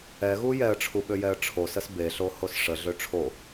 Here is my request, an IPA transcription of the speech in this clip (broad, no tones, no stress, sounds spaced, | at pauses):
ɛ ɣ u j ɛ ə̯ ʈ͡ʂʰ u ɓ ø j ɛ ə̯ ʈ͡ʂʰ o s ə s b e ɬ o h o s ʂ ə ɮ ø ʈ͡ʂʰ o